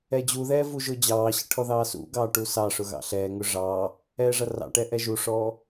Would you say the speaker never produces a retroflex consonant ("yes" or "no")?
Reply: no